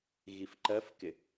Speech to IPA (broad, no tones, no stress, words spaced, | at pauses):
ɣifǃɜfkɪ